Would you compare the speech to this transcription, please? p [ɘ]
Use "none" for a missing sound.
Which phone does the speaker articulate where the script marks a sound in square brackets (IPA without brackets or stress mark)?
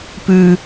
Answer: ʉ